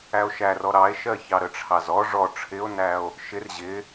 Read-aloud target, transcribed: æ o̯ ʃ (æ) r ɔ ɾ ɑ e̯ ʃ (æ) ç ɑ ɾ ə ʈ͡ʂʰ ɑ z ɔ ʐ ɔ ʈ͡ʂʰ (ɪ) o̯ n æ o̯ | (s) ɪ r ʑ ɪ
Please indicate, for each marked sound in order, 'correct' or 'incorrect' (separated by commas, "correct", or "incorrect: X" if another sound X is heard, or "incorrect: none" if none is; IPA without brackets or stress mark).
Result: correct, incorrect: ɜ, correct, incorrect: ʃ